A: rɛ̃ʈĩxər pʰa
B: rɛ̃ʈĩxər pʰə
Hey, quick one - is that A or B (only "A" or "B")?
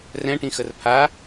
A